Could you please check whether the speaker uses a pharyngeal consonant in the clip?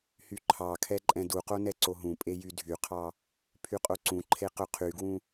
no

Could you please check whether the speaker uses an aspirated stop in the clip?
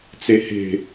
no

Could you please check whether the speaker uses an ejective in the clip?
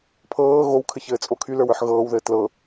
yes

